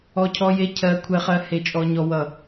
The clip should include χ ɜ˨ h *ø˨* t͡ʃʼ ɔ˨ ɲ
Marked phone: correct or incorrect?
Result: incorrect